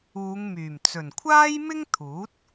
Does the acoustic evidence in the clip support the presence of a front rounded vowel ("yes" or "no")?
yes